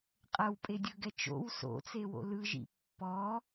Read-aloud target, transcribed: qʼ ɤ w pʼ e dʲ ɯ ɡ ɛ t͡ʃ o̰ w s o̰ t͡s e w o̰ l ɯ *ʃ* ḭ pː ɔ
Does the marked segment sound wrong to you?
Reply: yes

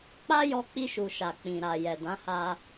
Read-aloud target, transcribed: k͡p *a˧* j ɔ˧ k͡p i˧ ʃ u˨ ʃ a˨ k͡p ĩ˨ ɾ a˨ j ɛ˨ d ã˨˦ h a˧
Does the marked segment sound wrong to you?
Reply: yes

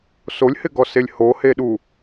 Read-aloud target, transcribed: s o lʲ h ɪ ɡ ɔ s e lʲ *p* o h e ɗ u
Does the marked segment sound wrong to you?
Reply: yes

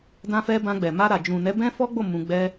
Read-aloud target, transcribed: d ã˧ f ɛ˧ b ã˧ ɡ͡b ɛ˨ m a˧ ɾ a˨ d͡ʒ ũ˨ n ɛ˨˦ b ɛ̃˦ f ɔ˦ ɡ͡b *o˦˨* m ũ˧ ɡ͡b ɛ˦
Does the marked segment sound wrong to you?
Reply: no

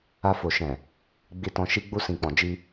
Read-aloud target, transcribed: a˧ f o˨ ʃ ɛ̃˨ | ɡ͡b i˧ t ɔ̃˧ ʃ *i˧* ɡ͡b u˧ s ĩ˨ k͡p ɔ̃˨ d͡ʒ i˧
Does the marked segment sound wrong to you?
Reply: no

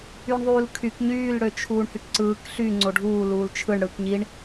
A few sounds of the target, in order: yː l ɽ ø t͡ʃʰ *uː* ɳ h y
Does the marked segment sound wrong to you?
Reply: no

